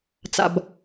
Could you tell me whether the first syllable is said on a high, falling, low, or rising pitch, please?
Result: low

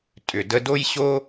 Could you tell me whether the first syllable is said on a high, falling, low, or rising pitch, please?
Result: low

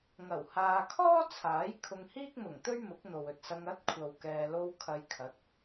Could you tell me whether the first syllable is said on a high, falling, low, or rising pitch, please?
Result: low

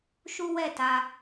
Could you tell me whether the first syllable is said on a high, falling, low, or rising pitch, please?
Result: high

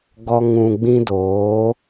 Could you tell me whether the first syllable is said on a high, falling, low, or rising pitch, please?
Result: high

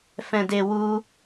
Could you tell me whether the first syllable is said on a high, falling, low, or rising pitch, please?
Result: low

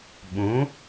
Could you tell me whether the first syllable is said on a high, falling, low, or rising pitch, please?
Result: rising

